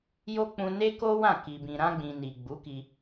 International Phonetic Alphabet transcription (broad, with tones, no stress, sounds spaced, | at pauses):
j o˦ k͡p ũ˧ n e˦ k o˦ w ã˦˨ k i˨ b ĩ˨ ɾ ã˧ ɡ͡b ĩ˨ n i˨ ɡ͡b u˨˦ k i˧